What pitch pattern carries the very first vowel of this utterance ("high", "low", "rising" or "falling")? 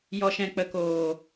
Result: low